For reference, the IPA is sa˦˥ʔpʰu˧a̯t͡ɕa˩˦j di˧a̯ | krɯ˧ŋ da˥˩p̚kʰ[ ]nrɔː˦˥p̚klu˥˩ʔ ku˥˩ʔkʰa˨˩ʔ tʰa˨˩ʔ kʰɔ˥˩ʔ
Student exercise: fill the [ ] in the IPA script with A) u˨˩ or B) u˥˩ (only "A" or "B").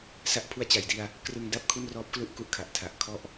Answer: B